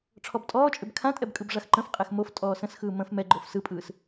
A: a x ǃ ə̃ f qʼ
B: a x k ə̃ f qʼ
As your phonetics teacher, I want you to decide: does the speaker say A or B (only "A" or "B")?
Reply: A